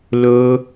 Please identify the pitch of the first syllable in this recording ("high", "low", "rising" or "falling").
high